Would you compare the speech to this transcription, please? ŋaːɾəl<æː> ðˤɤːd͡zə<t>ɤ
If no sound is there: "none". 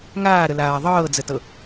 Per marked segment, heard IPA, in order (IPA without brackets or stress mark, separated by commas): aː, t